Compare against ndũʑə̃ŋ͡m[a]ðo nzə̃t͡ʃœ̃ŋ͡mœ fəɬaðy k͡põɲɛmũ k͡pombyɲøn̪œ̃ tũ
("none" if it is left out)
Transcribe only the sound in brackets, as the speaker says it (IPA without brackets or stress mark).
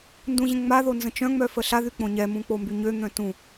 a